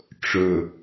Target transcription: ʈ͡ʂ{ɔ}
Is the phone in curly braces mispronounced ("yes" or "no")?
yes